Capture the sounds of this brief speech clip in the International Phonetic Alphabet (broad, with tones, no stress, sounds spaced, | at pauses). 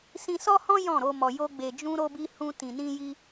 s ĩ˧ s ɔ˦ h ɔ̃˦ j ɔ̃˦˨ ɾ o˧ m ɔ˨ j o˧ ɡ͡b e˨ d͡ʒ ũ˧ ɾ o˧ b i˧ h ũ˧ t ĩ˨ n ĩ˧ j i˧